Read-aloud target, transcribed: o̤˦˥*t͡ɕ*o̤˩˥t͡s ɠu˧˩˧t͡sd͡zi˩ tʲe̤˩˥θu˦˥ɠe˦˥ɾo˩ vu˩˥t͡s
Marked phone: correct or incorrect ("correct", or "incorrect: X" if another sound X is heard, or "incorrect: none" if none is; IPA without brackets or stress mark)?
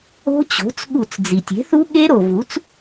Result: correct